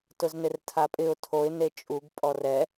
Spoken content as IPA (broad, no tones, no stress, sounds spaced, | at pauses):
t ʊ z n ɪ r tʰ a pʼ ɪ ʊ̯ tʰ o ɪ̯ n e t͡ʃʼ u ɡ pʼ ɔ r ɛ